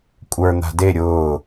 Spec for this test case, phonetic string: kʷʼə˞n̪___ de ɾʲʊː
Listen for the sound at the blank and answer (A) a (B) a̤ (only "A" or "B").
B